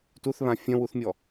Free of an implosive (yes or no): yes